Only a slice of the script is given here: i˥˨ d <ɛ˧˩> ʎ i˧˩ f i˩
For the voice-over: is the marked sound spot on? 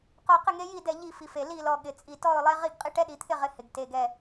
yes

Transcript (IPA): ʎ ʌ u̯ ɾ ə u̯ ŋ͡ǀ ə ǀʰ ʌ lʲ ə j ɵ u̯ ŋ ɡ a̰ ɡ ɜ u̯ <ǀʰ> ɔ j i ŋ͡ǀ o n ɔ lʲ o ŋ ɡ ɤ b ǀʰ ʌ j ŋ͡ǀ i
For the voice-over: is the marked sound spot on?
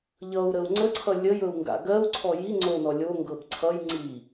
yes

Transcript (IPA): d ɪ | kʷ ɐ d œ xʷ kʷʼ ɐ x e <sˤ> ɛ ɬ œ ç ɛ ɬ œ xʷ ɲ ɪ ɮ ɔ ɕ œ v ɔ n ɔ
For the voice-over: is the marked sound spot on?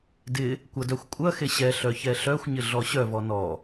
no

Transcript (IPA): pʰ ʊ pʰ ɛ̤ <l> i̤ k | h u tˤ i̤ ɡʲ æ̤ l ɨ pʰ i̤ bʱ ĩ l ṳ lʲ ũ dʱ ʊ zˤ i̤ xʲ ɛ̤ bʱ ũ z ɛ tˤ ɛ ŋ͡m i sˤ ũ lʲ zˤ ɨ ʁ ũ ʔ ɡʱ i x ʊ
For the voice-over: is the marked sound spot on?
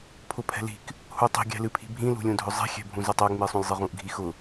yes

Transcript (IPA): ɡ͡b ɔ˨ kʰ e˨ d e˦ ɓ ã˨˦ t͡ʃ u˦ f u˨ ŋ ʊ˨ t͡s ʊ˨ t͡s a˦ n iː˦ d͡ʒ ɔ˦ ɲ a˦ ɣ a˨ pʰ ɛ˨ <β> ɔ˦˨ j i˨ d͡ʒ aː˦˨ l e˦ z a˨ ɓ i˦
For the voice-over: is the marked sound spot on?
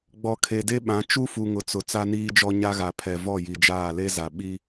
no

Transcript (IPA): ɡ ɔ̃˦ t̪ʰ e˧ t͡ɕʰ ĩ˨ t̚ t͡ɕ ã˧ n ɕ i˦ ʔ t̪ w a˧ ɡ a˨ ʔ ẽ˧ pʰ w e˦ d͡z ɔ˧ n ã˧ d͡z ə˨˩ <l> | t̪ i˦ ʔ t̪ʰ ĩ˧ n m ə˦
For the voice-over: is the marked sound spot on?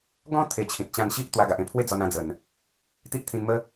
no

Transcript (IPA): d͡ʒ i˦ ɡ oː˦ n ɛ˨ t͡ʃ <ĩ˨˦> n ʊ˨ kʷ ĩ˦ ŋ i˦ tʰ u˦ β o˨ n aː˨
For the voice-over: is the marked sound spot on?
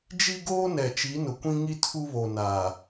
no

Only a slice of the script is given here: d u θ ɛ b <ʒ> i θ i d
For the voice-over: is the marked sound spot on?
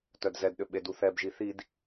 yes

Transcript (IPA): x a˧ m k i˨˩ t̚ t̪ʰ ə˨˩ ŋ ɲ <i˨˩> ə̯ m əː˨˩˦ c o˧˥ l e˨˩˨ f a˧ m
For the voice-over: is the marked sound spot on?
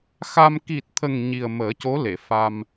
yes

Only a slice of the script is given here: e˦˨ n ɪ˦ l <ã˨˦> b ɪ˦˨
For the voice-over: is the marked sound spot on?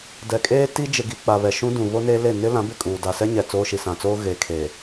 yes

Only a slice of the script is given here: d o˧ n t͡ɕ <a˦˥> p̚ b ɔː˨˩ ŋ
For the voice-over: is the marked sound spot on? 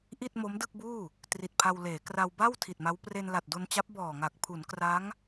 yes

